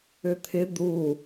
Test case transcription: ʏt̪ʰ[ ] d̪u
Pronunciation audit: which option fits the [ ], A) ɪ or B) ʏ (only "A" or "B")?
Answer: A